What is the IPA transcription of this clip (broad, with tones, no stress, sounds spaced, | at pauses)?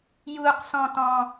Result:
j uː˥ q s ɔ̃˥ t ɔ̃˥